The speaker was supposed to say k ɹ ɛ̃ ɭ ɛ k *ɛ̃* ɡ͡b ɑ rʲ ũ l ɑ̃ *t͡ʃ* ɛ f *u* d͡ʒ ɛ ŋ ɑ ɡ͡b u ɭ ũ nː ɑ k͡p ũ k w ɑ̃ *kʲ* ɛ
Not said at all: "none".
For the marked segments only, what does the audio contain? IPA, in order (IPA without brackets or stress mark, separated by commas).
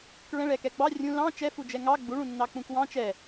ɛ, t͡ʃ, u, t͡ʃ